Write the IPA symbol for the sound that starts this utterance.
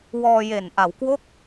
w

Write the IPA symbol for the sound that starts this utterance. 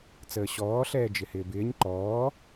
t͡s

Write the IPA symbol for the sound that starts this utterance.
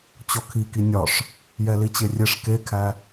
t͡ɕ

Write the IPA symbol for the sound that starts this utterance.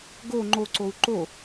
ɡ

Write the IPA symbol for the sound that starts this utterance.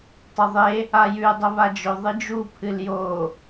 tˤ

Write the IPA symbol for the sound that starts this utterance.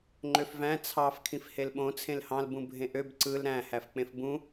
ŋ͡ǃ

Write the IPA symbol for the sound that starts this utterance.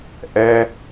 ʔ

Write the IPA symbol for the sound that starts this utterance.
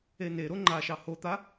e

